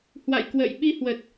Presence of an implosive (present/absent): present